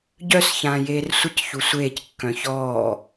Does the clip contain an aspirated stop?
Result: no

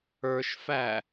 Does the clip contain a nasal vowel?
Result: no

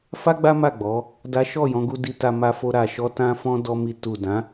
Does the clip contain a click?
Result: no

